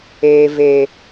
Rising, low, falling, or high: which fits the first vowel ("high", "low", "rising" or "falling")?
low